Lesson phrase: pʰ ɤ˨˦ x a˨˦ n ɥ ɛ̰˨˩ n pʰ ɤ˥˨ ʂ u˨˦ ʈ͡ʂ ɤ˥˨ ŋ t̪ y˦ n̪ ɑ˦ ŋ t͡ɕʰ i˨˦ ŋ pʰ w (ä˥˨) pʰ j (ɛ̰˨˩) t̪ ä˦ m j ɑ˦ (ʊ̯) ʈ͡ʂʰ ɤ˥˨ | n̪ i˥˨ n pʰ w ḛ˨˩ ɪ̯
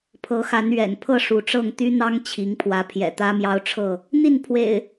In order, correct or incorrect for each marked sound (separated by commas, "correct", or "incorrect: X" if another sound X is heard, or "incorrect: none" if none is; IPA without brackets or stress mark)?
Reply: incorrect: ä˨˦, correct, correct